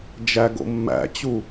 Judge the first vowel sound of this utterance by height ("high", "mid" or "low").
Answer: low